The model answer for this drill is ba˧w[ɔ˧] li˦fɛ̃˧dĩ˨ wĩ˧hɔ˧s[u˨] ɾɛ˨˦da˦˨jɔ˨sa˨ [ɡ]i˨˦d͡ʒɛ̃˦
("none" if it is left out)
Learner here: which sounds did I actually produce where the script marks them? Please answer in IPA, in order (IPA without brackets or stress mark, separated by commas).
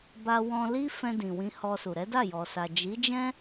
ɔ̃˧, u˨, d͡ʒ